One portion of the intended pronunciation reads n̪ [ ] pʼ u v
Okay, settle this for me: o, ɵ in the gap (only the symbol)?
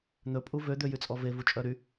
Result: ɵ